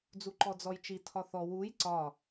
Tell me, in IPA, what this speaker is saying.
d͡z u ǃ ɔ d͡z ɔ j t͡ʃ i tʰ ɒ θ ɔ w u j ǀ ɒ

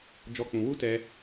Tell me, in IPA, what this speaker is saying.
d͡ʒ ɔ˦ k͡p ũ˧ w u˦ t ɛ˧

